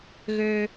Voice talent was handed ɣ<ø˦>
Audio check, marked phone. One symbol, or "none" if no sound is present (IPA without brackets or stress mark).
ø˦